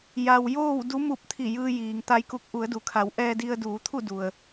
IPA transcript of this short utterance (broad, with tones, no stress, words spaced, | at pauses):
ja˩w joː˥˨wdu˧˥ mu˧˩p̚ t̪ʰi˧˩jɯː˧jiː˩ŋ t̪a˧jku˧k̚ ʔu˩˧ə̯du˩kʰa˩˧w ʔɛː˧di˧ə̯ duː˩˧t̪ʰu˥˨du˩ə̯